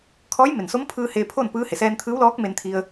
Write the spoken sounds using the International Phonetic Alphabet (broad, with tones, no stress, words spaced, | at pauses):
kʰɔː˧˥jme˩nso˧˥mpʰɯː˧ heː˧pʰo˥˨n pɯː˧˥ he˩sɛː˧nt̪ʰɯː˧˥wlɔː˧˥k̚ me˧nt̪ʰi˧ə̯